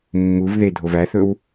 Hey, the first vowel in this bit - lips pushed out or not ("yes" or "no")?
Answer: yes